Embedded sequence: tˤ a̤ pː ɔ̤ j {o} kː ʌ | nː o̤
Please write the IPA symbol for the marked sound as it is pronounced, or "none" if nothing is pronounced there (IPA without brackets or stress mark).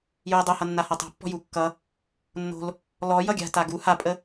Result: u